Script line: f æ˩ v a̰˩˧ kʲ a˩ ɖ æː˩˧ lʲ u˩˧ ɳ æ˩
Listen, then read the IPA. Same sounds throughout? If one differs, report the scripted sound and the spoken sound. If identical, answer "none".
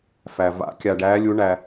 none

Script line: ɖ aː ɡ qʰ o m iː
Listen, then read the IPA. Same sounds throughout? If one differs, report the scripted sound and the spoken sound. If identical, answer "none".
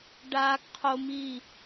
none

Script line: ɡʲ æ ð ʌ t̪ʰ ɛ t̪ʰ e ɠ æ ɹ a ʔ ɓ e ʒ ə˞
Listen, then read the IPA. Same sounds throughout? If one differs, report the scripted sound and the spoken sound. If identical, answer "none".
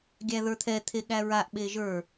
ʌ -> ə˞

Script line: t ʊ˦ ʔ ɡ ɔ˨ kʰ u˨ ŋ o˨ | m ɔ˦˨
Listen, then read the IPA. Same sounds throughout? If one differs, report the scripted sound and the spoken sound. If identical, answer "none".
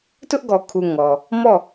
o˨ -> ɔ˨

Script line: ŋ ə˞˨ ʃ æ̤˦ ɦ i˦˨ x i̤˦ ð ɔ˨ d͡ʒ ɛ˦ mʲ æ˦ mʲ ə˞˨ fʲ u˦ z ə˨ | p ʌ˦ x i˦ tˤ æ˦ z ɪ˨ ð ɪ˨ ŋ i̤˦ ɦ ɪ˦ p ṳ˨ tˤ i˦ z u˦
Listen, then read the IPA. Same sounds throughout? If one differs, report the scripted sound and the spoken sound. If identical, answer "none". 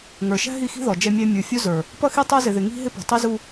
ə˨ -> ə˞˨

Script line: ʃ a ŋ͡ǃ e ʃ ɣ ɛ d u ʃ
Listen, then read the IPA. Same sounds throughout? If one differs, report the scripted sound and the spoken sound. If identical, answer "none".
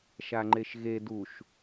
ɛ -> e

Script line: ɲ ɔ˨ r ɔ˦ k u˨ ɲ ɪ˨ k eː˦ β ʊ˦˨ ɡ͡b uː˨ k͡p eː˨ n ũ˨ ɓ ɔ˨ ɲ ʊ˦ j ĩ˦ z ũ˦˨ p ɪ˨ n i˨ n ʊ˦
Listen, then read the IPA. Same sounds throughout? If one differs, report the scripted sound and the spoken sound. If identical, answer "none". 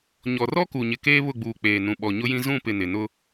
i˨ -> ɪ˨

